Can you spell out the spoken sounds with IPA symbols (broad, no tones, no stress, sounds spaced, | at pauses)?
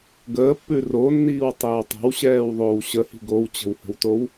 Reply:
ɡ əː pː ʉ r o nː iː w tˤ əː w tˤ ə̤ w ɕ ɛː w ðˤ oː w ɕ ə h i̤ ɡ o w t͡ɕ ə̤ w h ə̤ w t o w